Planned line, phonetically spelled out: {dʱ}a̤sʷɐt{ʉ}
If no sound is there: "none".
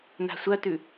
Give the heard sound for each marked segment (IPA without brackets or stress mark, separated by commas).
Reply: n, ʉ